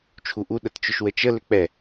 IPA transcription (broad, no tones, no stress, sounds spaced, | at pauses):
t͡ʃʰ u ʔ u ɗ ə t t͡ʃ ʊ ʃ w ə t͡ʃ ə l ʏ k͡p ɛ